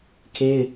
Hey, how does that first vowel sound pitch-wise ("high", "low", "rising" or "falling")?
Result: high